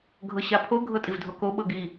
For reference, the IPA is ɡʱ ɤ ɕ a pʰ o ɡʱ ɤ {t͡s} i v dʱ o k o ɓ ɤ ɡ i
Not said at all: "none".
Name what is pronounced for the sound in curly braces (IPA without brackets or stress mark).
tʼ